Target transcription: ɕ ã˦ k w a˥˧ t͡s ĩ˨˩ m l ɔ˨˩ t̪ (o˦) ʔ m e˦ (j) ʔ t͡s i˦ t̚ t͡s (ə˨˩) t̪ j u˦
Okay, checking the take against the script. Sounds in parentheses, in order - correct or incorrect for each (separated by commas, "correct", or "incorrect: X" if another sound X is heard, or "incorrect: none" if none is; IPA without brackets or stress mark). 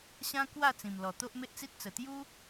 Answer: correct, incorrect: none, correct